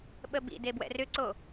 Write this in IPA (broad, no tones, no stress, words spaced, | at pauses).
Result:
ɓəbḭ debwɛ̰rʏǀo